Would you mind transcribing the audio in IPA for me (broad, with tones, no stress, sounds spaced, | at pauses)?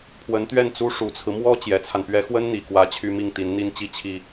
pʰ w ə˧˥ n t̪ ɥ ɛ˥˩ n t͡s u˥ ʂ u˨˩ t͡sʰ ɹ̩˦ m w ɔ˥ t͡ɕ j ɛ˧˥ t͡sʰ a˧ n p ɥ ɛ˥ x w ə˥ n n̪ i˨˩ k w ä˧˥ t͡ɕʰ y˥ m i˥˩ ŋ t̪ i˧˥ n n̪ i˥ n t͡ɕ i˥ t͡ɕʰ i˥